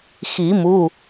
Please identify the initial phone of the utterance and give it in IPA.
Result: x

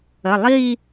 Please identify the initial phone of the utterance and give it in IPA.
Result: ə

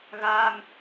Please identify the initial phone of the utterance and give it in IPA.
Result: ɣ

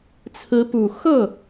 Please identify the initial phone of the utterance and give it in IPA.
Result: t͡sʰ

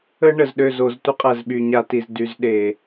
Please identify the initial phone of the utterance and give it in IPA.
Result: ə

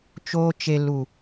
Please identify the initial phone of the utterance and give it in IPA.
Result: t͡ʃ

